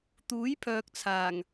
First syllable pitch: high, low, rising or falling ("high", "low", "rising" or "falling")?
rising